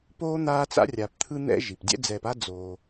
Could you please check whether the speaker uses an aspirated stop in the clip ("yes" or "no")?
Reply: yes